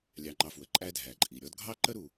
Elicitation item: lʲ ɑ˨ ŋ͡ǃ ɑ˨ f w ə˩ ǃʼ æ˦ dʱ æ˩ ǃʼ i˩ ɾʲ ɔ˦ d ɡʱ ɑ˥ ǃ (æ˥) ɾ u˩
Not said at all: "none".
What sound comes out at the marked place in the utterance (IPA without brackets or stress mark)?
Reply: ə˥